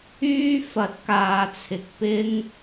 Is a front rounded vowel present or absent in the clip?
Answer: present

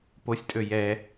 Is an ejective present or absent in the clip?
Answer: present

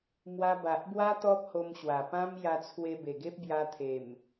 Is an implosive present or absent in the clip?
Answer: absent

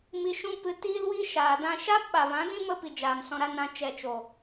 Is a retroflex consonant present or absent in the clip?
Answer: absent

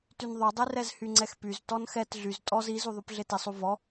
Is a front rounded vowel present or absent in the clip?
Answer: present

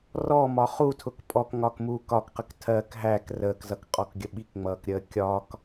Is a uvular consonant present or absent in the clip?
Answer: present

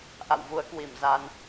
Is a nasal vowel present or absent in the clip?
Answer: absent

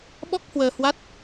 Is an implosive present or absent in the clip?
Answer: present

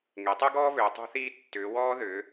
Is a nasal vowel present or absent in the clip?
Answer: absent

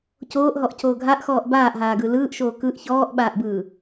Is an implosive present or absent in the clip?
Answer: present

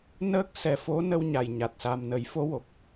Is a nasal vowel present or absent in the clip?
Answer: absent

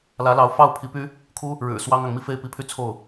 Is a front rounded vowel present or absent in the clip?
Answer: present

